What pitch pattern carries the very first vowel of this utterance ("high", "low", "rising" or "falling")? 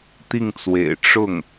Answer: falling